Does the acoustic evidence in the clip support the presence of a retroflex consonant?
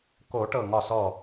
yes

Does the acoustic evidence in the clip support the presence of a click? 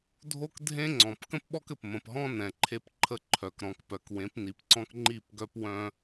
yes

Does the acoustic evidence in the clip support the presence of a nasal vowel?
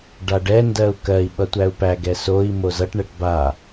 no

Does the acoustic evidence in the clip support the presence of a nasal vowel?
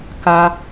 no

